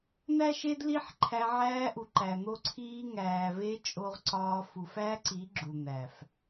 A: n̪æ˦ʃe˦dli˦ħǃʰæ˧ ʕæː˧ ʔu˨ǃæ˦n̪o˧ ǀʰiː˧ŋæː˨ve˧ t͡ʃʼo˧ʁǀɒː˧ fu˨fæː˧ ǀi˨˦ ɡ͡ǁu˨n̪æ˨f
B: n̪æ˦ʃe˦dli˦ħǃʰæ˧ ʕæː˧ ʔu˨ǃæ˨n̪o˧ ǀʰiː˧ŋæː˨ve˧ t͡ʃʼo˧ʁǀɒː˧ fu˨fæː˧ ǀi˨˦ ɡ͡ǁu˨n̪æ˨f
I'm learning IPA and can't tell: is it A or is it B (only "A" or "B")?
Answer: B